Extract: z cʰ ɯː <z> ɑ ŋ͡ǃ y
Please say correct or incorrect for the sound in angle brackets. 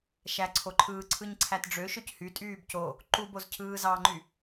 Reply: correct